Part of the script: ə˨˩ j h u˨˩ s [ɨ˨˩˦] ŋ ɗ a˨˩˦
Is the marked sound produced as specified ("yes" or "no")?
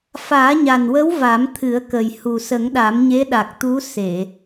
no